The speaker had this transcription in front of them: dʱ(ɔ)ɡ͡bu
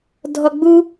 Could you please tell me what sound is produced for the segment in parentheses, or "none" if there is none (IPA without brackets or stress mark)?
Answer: ɔ